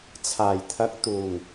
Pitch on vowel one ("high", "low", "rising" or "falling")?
low